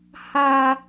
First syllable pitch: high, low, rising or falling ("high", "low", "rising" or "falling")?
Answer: high